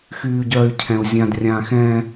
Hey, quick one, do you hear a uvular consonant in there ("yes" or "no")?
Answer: no